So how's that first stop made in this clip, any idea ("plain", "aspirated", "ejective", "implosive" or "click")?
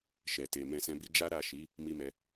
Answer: plain